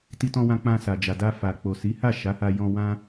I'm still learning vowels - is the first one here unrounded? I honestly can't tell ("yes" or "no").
yes